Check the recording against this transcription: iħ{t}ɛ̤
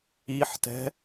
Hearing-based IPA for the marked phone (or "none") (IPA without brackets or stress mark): t